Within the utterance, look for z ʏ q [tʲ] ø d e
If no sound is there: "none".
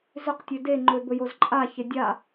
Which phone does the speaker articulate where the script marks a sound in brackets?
tʲ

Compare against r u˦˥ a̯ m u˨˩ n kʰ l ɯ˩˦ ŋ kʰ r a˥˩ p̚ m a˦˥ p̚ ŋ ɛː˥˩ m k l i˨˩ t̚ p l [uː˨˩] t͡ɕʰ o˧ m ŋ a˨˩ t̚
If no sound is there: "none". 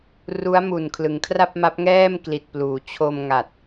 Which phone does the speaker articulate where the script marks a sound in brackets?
uː˩˦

